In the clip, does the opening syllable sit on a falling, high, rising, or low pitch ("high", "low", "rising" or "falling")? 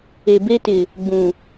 low